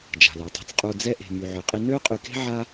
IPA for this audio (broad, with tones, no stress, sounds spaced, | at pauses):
d͡ʒ a̤˩ l œ˩ tˤ e̤˧ t͡s qʼ u˧ d͡z ɛ˥ ʔ e̤˧ m y˧ ʕ ø˧ qʼ i˥ n ø˥ qʼ y˧ k e̤˥ ʕ a˥